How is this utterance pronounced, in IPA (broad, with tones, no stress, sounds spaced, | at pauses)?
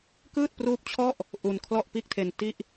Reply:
k ɯː˥˩ t̚ p r uː˦˥ p̚ t͡ɕʰ ɔ˥˩ ʔ | ʔ u˧ n kʰ l ɔ˥˩ ʔ p iː˥˩ k̚ tʰ e˧ n t i˥˩ ʔ